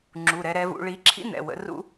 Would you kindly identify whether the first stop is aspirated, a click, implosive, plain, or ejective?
click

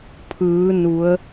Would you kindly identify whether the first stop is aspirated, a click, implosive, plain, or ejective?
aspirated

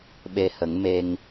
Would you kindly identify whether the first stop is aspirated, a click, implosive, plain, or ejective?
implosive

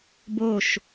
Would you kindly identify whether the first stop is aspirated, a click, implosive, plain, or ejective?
plain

